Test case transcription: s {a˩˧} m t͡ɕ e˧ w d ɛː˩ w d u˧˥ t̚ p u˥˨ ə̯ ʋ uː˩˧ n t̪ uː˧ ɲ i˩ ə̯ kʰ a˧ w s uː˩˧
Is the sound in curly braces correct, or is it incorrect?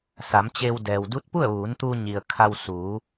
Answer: correct